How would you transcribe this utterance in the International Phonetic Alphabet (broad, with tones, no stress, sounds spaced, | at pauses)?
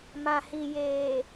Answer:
m ã˨ h i˨ j eː˨